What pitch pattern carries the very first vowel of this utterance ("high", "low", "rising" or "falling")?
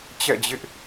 falling